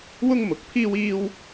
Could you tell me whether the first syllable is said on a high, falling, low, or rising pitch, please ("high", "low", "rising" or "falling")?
high